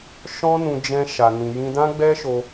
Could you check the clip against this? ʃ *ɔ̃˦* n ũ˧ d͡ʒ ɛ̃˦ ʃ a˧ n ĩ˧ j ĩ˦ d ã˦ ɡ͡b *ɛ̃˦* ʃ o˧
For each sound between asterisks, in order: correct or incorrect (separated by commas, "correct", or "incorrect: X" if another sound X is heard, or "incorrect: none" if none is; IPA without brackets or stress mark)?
correct, incorrect: ɛ˦